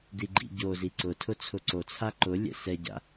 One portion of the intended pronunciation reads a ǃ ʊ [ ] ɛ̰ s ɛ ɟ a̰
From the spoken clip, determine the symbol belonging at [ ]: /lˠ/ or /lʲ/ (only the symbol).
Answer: lʲ